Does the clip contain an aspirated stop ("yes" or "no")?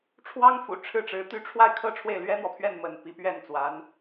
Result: yes